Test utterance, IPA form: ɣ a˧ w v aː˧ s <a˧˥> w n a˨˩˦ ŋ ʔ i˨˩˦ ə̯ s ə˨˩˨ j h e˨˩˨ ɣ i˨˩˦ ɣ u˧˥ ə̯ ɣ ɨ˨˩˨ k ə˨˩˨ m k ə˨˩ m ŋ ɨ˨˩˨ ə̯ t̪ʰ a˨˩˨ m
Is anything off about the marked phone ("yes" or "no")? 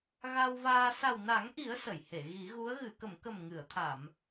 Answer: yes